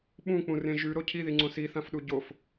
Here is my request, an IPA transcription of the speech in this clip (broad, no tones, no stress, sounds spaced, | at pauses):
ɓ ũ k͡p ũ r ẽ ʒ ʉ ɾ o cʰ i ð i ŋ͡ǀ õ s i θ ã f ɗ u ɟ o f